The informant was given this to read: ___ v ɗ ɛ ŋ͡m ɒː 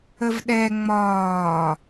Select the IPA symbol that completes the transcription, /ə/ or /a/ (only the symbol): ə